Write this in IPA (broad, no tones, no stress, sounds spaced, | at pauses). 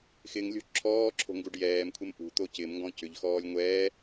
x ɪ ŋ lʲ o̤ ǁʰ ɔː ǁʰ o̤ ŋ ɡ u ɖ j ɛː m kʷʰ ɪ m ʔ ṳ t̪ o c ɪː m ŋ ɡ ɔ̃ c ʏ ʎ x ɔː lʲ ŋʷ ɛː